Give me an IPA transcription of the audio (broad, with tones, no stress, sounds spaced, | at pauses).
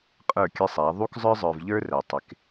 qʼ ə˞˦˨ kʲ ə˦ sˤ æ˨˦ ðˤ u˦ k zˤ ə˞˦ zˤ ə˞˨ v ʎ ə˞˦ r æ˨ tˤ ɪ˨˦ k